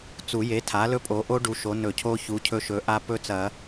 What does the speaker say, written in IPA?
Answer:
t͡su˨˩˦je˩˥ tʰa˩˥lɵ˦˥pʼo˩˥ʔo˦˥ ɖu˩˥ʃo˩˥nɵ˨˩˦cʰo˦˥ çu˩˥cʰɵ˦˥ʃɵ˩˥ ʔa˦˥ pɵ˦˥t͡sɐ˨˩˦

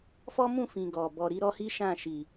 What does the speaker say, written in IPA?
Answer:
fɔ˦mũ˦˨fĩ˨ ɡɔ˨ bɔ˨ɾi˧ ɾɔ˦hi˦ʃã˦˨ ʃi˨

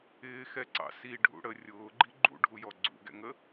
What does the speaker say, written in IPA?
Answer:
ɪːxɛǀɑ̰ siɖʱṵ ɽə rʲʊːɡ͡ǃi ɡ͡ǃṵɖʱujɔ ɡ͡ǀṵɡɛ̰ŋə

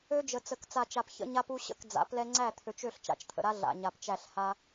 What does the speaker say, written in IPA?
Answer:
ø˦d͡ʒə˨ t͡sə˨k t͡sa˨t͡ʃa˨p çə̰˦ɲa˦pu˦ɕə̰˦˨k d͡za̰˨˦plɛ˦ ŋ͡ǀæ˦˨t̪ʰø˨t͡ʃ ø˦˨ɬt͡ʃa̰˨t͡ʃt̪ʰə̰˨ɾa˦ ɮa̰˨ɲa˨pt͡ʃæ˦˨ɬ ha˦

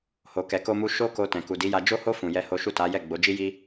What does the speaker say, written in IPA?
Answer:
ho˨ kɛ˧ko˦mu˦ ʃo˦ko˧ tɛ̃˨ku˨di˨˦ja˧ d͡ʒo˦ho˦ fũ˧jɛ˦ho˦ ʃu˦˨ta˨˦jɛ˦˨ ɡ͡bo˨˦d͡ʒi˦ji˦

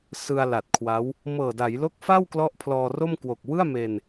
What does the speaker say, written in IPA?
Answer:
sɯ˧a̯la˨˩t̚kʰwa˦˥w | mɤː˨˩da˩˦jlo˦˥k̚ fa˥˩wklɔ˦˥ʔ pʰlɔː˧ro˥˩m kwo˨˩k̚wɯ˥˩a̯me˧n

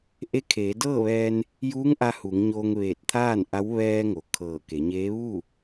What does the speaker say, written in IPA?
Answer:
ʔe˧˥kʰeː˩˧ dɤː˥˨ʋɛː˧n | juː˧˥ŋʔa˧ hu˩˧ŋɲoː˧ŋʋeː˧˩t̚t̪ʰaː˥˨n ʔa˧˥w ʋɛː˧ ŋo˩kʰɤː˧˩ ke˩˧ɲeː˧˥ ʋu˥˨

